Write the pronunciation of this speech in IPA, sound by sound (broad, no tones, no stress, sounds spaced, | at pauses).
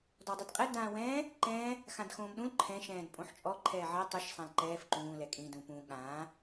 d ɔ dˤ i d qʼ ɛ d ãː w ɛ̃ː | ǃ ɛ̃ː | x ã d x õː m ɗ ũ l ǃʰ ɛ̃ ʃ ɛ̃ː d pʼ õ ħ t͡ʃʼ ɔ ǃʰ ɛː ʕ ɜ tˤ ʉ ʃ sˤ ã l ǃ ɛː f ǃ ũː l ɛ kʼ ĩ d ũ p ũ ɠ ãː